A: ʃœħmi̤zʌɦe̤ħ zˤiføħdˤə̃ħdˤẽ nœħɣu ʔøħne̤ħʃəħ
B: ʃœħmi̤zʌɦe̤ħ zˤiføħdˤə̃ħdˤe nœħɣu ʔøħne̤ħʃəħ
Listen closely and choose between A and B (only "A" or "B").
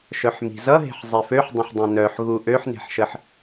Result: A